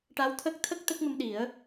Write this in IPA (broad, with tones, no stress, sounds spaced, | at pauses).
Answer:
ʈ a˧˥ w t̪ʰ ə˦˥ k̚ t̪ʰ ə˦˥ k̚ t̪ ə˦˥ k̚ m ə˧ m ɗ i˨˩˦ ə̯